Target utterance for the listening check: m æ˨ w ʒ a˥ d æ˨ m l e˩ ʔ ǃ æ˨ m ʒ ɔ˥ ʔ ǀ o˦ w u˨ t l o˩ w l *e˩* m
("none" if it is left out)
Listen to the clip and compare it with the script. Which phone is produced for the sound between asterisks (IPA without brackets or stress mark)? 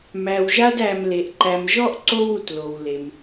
e˩